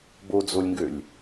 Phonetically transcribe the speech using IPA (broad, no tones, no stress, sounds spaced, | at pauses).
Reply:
b o d͡z o lʲ ŋ ɡ ø lʲ